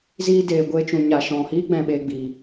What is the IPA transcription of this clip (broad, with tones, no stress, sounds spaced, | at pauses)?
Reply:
z iː˦ d eː˧ ɡʷ eː˦ t͡ʃ ũ˧ ɲ a˧ ʃ ɔ̃˧ h iː˦ ɡ͡b ɛ̃˧ ɓ e˧ ɡ͡b i˧